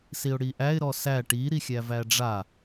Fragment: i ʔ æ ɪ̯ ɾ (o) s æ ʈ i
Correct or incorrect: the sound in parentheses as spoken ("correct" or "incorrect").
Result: incorrect